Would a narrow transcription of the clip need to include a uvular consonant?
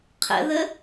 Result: yes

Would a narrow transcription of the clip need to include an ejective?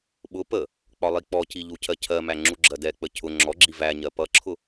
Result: no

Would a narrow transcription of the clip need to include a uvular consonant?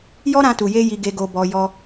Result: no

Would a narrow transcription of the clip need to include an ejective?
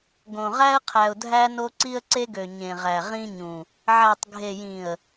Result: no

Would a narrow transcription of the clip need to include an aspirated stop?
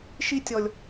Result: no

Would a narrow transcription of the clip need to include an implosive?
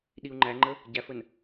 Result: yes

